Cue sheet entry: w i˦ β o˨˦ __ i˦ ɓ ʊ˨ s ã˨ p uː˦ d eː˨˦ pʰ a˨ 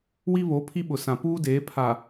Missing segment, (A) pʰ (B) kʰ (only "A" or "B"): A